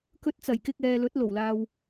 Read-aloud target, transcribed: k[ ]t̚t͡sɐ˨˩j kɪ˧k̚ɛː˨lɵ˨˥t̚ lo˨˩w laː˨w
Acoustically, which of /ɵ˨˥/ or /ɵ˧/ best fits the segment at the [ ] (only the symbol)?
ɵ˧